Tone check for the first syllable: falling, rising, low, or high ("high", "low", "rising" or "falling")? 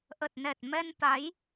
low